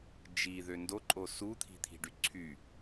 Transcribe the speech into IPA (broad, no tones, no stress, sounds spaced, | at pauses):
d͡ʒ i ð ø n d o ǃʼ o s u t̪ʰ i̤ t̪ʰ i̤ ɖ y ǀʰ y